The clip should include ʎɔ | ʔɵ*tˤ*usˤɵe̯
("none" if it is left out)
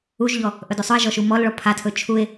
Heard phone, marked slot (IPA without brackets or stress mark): d